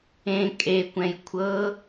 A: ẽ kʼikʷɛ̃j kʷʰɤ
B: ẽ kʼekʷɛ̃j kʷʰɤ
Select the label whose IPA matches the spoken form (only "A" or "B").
B